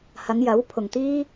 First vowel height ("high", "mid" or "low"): low